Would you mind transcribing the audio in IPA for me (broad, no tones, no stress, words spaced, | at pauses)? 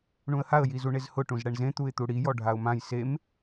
ɳũə̯haə̯ jizuɳezhʊ ʈũzɽɛɳzẽ t̪uɪ̯t̪uɽi jɔɖʱaʊ̯mãj sem